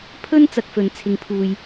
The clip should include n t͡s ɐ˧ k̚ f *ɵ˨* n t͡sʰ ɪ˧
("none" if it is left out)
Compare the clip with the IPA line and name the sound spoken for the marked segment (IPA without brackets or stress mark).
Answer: ɵ˨